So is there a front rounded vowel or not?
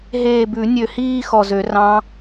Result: yes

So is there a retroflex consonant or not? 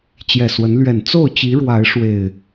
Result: yes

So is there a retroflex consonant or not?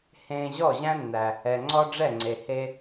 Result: yes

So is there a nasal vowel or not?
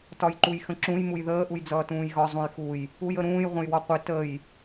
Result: yes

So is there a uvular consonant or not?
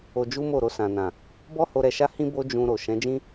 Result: no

